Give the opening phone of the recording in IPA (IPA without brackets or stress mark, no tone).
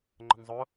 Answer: ŋ͡ǃ